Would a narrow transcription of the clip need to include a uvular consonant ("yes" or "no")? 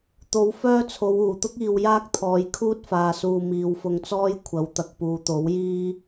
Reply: no